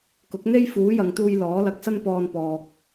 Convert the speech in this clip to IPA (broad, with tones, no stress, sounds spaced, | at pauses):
k ʊ˨˥ k̚ n̪ e˥ j f uː˨˥ j ɐ˨ ŋ t̪ uː˧ j l ɔː˨˥ l ɐ˧ k̚ s ɐ˥ n p ɔː˧ n p ɔː˨ k̚